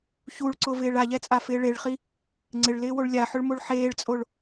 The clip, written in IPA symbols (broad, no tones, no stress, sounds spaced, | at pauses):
ç u ɭ ǀ ʊ v ɪː ɭ a ʎ ɛ t͡sʼ a f ɪː ɭ e ɭ χ i | ŋ͡ǀ ɪ ɭ l ɪː w o ɭ lʲ a ħ ʊ ɭ m o ɭ ħ eː ɭ t͡sʼ o ɭ